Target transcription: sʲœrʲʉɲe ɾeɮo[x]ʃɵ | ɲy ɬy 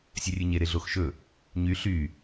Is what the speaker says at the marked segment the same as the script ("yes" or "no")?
yes